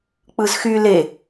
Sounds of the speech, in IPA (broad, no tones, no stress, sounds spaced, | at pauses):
k͡p ɯ z x y l e